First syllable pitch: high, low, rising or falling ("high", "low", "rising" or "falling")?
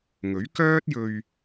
rising